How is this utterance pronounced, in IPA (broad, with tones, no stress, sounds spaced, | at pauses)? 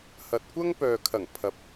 h ɐ˨ t̚ kʷ ɐ˥ ŋ p œː˨ kʰ ɐ˨˩ ŋ pʰ ɐ˨ p̚